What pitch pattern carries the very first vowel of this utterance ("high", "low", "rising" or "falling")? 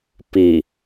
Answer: low